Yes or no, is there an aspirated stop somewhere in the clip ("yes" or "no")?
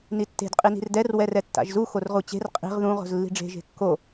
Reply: no